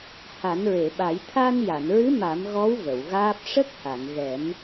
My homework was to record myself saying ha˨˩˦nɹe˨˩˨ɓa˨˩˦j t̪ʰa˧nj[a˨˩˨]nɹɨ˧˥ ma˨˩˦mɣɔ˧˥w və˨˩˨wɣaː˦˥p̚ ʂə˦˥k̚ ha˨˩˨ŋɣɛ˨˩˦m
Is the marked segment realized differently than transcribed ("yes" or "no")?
no